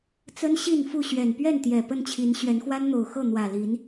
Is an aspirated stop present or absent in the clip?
present